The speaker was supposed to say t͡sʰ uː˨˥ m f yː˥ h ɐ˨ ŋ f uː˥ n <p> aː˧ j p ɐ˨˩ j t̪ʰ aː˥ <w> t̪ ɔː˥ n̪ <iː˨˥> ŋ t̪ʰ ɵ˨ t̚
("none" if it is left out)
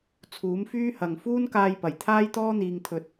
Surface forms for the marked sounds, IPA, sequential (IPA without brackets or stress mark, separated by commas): k, j, iː˨